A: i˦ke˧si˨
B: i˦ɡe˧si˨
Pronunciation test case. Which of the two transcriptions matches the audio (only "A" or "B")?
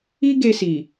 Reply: B